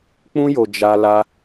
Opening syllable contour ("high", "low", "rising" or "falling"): high